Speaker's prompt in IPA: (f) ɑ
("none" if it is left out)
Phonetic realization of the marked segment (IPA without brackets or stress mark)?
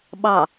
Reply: ɓ